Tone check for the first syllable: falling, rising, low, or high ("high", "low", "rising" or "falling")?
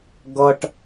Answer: high